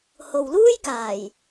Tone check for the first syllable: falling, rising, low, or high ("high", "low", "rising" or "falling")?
low